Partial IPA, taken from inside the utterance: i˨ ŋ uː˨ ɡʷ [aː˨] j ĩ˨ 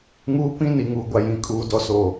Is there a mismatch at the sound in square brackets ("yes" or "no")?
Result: yes